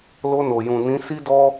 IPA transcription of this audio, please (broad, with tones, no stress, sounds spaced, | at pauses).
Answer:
l o˧ n o˨ j ũ˨ n ĩ˨˦ s i˦ d ɔ˦